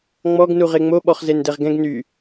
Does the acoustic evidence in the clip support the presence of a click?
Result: no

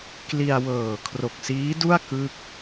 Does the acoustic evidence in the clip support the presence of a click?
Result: no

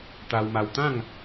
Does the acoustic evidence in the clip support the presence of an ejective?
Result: no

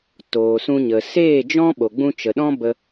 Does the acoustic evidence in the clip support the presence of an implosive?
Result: yes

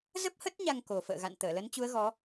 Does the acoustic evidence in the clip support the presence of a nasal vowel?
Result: no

